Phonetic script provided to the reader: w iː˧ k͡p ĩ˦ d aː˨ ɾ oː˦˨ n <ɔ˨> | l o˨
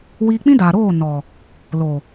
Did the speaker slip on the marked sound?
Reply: no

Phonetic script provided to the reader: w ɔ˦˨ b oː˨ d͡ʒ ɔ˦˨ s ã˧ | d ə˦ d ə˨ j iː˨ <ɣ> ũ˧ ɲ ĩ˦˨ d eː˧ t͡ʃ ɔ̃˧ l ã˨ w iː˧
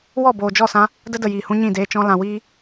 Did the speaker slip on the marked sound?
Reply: yes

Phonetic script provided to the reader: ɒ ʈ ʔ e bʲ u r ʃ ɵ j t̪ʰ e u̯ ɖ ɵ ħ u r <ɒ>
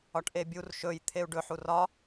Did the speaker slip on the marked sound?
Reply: no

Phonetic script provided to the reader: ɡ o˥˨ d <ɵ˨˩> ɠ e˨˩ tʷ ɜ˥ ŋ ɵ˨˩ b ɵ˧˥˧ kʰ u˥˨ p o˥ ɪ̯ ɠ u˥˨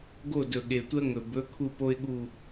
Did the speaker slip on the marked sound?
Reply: no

